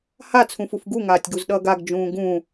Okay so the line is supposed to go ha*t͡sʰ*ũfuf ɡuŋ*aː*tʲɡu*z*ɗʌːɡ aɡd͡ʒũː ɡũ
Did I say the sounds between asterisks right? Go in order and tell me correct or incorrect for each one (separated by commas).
correct, correct, correct